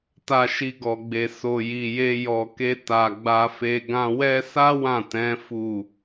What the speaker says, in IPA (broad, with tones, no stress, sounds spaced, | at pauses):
t a˧ ʃ i˧ ɡ ɔ˨ ɡ͡b e˨ s o˨ j i˨ j e˧ j ɔ˨ k e˧ t a˨ ɡ͡b a˧ f e˧ ɡ ã˧ w ɛ˦ s a˦ w ã˦˨ t ɛ̃˨˦ f u˦˨